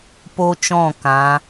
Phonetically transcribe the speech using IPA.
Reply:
po˦t͡ʃɔ̃˦˨ kã˨˦

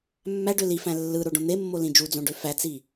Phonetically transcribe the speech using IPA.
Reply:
mːæɖø lifæ̃ lːɯɾoɖõ n̪emːolĩ d͡ʒud͡zõɖø fæt͡si

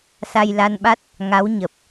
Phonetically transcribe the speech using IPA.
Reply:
sa˧jla˧nɓa˦˥t̚ | ŋa˨˦w ɲə˨˩p̚

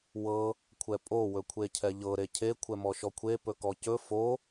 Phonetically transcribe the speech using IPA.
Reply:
wɤ | kʷʰɛpʼo wɵkʷʰecʰɛʎɤ ɾecʰe kʷʰɛmɔʃɔkʷʰe pɵkɔcɵ fo

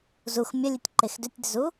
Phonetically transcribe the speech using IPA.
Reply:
zux mʲəlʲʉtʲ ǃexdʏtʲdʏzu

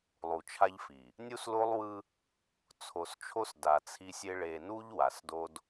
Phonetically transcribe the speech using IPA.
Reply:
lˠu˨t͡ʃʰa˦ʎfi˨ | nʲu˦slo˦lˠwɯ˦ | t͡sʰo˨st͡ʃʰo˦s da˨t͡sʰi˦sʲe˦ ɭe˨nu˦ʎ wa˨sdo˦d

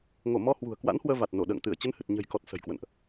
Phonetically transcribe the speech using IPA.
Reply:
ŋo˧˩mɔ˧ hwṳ˨˩ə̯kwa̰˧˥nhwəː˧ va˨˩t̚no˧˩ ɗə̰ː˧˨ŋt̪ɨ˧˩ə̯ t͡ɕə˨˦nhɨ˨˩t̚ɲə̤˨˩jkɔ˨˩t̚ sə̤˨˩jkwə̰˧˨nʔ

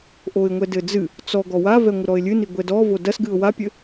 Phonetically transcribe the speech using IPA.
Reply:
ʔoɪ̯ŋʷɛdɘd͡zɨ | t͡sɔ ɡɔwavɛŋʷɘ ɾɔɪ̯lʲɨni ɡʷɛdɔvo dɐsɡɨʊ̯ wapʲɘ

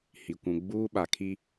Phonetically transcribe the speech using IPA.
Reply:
hi˨ kʷũ˨ ɡ͡buː˦ɓa˨kʰi˦

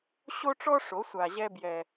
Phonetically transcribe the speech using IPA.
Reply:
ɕo˦ʈ͡ʂɔ˦ʂo˨˦ sʷa˨ʑɛ˦ bjɛ˦

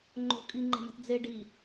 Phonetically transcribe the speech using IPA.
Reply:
ŋ͡ǃo̤ kʼiŋ͡ǃe̤ma̤t d͡ze ɖi

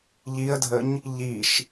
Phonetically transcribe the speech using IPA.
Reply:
ʎiə̯dʱəɲ | ʎiʃ

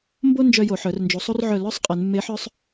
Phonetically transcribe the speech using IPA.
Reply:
mbo˦ nd͡ʒœ˦jo˧˩˧ ħœ˩˧rnd͡ʒu˩˧sˤu˦rʕœ˧˩ lœ˨˥sˤ qʼe˩˧nmːe˨˥ħœ˦sˤ

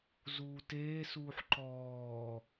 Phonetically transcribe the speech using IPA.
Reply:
zuːteːsuːħ ǃɔː

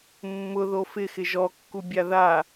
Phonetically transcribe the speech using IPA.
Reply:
mːʊðo fɪxɪ ʒɔkːubʲa ða

